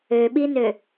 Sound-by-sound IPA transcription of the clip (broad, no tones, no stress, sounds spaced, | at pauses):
ø ɓ i n ø